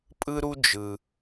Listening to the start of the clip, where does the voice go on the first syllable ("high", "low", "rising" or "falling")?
high